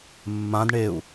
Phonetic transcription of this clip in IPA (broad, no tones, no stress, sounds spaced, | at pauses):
mː ã d ɳ e u̯